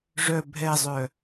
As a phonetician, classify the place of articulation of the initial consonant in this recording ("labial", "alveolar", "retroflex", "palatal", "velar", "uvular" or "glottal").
retroflex